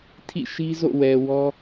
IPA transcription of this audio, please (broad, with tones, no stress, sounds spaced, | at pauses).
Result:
tʰ ḭ˦˨ ʃ i˦ z o̰˦˨ w ɛ˨ w ɔ˦